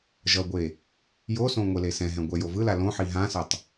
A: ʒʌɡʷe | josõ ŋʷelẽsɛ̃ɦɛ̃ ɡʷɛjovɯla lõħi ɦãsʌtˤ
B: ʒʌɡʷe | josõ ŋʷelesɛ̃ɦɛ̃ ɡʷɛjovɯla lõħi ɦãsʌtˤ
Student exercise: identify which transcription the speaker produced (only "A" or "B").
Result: B